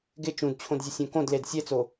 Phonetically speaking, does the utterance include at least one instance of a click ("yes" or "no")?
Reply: no